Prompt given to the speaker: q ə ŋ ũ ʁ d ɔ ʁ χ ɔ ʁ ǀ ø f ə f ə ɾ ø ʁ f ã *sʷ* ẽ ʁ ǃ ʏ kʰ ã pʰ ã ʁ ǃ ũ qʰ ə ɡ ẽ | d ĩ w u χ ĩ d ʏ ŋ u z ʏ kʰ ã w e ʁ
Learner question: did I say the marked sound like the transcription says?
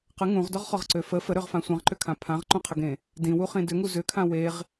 yes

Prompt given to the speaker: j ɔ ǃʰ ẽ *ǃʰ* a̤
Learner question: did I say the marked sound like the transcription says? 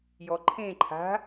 yes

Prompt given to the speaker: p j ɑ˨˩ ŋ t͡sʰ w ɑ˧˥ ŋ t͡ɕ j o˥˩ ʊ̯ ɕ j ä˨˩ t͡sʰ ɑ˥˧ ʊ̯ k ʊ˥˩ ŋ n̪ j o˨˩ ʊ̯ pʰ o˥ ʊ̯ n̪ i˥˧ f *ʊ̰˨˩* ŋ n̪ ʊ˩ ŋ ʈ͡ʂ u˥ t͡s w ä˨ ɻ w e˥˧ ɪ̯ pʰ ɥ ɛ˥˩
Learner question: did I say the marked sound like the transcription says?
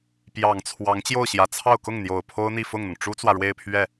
no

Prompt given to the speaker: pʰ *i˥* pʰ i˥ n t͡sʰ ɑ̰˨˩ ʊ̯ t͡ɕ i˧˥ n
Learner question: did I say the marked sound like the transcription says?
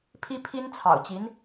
yes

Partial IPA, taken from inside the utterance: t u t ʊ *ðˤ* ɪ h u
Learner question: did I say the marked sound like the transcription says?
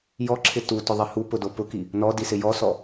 yes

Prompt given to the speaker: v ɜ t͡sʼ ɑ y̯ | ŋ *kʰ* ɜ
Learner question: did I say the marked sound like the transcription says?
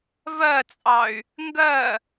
no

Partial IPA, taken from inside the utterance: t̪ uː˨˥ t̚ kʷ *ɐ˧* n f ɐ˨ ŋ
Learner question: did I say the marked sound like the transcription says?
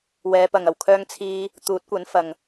no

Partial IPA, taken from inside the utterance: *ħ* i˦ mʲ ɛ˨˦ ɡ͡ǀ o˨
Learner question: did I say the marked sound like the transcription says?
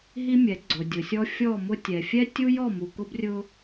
no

